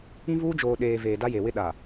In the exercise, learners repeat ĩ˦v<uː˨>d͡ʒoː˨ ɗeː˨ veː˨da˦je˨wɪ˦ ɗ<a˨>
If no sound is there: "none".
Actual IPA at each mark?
uː˦, a˨

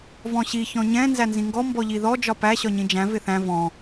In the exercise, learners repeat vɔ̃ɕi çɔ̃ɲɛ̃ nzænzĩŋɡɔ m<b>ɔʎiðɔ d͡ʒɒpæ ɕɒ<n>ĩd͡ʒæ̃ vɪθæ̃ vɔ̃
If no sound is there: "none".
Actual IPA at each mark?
b, ɲ

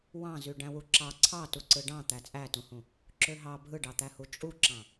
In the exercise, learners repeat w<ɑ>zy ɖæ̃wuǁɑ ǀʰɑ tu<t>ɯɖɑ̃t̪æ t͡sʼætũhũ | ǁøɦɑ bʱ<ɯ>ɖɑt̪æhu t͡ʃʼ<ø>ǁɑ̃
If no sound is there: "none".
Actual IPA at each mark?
ɑ̃, ǀ, ɯ, u

